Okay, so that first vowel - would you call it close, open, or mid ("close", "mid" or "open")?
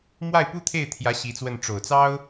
open